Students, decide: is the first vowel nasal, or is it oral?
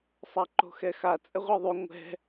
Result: oral